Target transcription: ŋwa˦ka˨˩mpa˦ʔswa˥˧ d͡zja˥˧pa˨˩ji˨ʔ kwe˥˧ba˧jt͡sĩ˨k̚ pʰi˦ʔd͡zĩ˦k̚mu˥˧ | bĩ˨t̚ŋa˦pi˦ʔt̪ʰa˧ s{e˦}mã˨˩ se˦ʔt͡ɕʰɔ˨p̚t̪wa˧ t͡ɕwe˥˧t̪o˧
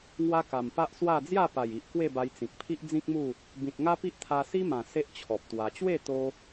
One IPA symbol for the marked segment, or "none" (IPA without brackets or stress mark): i˦